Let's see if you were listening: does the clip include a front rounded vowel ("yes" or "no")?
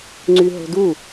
yes